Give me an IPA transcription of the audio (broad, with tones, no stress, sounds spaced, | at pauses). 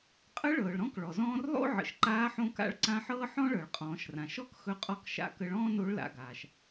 qʼ ə˧˥ ɭ ɤː˩ ɭ ɾ ɔ̃˧˥ k ɭ ɔ˩ z ɔ̃ː˧ r lˠ o̰˥ ʕ ə̰˩ ʃ ǃ aː˧˥ ħ õ˧˥ k a̰˧˥ ɭ ǀ ã˧˥ ħ ɤː˥ ħ ɔ̃˥ ɭ ɤ˩ ɭ qʼ ɔ̃ː˩˧ ʃ r ã˩ ʃ ɔ˧˥ k x ɵ˧ qʼ ɔ˧˥ k ʃ a̰˧ k ə˧ ɭ ɔ̃ː˥ n o˧˥ ɭ l a̰˩˧ ɡ aː˩ ʃ